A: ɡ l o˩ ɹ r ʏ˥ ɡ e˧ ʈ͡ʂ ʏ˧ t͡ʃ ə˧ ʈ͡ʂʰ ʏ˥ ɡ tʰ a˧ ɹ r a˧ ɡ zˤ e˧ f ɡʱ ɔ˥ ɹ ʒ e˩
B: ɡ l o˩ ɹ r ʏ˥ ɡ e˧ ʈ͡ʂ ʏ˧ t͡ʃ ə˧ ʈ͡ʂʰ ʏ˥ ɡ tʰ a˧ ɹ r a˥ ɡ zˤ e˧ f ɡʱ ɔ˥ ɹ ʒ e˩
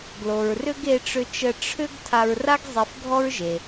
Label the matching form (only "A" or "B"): B